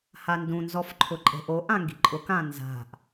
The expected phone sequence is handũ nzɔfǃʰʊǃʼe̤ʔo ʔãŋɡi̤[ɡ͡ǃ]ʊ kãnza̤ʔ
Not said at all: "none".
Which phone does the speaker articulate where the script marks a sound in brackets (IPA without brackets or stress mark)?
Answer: ǃʼ